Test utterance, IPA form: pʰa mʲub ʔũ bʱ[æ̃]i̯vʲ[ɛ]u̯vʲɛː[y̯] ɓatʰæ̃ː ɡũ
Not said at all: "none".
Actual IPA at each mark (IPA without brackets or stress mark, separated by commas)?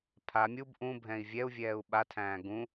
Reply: ɛ̃, ɛ, u̯